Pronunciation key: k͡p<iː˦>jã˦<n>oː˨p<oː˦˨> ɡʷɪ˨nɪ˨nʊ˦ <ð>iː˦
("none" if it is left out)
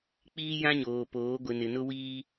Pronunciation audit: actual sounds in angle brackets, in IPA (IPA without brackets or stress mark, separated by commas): iː˦, ɲ, oː˨˦, w